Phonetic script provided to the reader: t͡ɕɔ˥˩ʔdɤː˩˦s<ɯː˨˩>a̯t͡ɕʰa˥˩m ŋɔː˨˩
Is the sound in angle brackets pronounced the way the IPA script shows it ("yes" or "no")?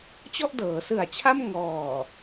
no